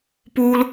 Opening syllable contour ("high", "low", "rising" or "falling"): high